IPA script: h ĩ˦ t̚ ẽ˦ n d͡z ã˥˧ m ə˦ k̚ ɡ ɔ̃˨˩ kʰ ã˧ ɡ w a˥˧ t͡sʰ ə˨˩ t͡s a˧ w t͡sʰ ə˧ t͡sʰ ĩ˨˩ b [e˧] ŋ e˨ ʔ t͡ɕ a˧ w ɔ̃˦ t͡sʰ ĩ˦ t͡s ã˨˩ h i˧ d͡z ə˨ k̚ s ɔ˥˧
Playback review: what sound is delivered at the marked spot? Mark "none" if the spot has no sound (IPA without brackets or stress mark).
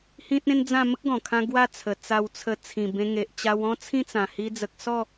ẽ˧